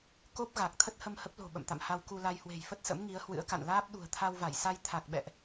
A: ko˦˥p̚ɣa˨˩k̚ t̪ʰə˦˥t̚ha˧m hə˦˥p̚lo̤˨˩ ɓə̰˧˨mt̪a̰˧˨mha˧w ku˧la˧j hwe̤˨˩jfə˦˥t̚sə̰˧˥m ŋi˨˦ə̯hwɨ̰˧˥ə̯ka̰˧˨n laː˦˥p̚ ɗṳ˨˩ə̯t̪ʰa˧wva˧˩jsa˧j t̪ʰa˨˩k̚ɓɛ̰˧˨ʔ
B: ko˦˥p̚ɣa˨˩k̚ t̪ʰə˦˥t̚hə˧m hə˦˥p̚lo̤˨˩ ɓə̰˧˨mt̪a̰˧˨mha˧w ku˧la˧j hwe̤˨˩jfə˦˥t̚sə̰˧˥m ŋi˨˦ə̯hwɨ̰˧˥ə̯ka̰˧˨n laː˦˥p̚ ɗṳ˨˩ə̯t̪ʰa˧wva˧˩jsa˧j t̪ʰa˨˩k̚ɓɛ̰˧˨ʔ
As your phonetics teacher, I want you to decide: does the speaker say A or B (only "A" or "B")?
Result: B